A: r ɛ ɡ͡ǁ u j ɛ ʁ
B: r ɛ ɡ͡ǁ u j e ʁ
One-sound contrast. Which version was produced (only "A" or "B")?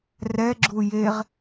B